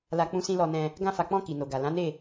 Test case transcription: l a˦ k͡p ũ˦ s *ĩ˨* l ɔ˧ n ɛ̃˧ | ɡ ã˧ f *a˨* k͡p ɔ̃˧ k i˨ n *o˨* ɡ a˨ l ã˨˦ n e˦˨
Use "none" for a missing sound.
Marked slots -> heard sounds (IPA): ĩ˦, a˨, o˨

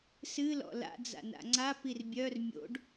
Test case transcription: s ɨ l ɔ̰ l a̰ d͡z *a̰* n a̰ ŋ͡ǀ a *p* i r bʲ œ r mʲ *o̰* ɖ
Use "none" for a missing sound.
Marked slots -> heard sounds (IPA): a̰, p, o̰

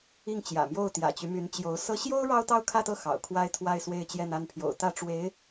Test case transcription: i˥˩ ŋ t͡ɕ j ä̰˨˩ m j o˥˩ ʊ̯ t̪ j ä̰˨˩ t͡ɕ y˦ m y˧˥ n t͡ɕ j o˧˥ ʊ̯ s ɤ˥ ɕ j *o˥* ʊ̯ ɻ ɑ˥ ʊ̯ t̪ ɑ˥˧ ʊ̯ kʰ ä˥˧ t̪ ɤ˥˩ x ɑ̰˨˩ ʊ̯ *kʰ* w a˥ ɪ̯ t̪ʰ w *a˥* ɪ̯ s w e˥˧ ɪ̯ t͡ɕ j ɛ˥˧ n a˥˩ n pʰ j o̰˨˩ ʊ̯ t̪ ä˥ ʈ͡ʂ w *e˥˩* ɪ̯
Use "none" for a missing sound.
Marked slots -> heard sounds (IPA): o˥, kʰ, a˥˧, e˧˥

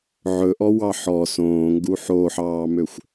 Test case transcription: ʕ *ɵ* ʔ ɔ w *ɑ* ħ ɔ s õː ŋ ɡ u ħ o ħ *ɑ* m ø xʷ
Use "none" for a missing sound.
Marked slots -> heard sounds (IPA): ɵ, ɑ, ɑː

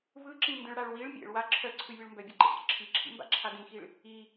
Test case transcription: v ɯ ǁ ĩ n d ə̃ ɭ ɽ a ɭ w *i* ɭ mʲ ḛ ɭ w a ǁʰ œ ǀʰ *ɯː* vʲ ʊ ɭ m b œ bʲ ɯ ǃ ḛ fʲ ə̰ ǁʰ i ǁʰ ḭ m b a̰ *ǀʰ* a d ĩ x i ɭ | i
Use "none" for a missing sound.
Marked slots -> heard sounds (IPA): i, ɯ, ǁʰ

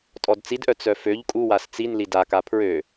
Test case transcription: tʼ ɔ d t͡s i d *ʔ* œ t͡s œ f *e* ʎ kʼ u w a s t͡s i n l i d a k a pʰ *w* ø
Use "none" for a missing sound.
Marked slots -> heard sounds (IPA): ʔ, ø, ɹ

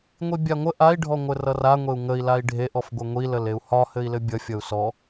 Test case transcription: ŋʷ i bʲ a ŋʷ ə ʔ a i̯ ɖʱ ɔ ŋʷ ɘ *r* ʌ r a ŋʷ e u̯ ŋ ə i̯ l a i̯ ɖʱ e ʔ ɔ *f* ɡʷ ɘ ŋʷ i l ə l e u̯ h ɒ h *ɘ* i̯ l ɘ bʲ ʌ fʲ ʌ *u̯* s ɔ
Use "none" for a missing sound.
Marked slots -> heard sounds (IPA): r, f, ɘ, u̯

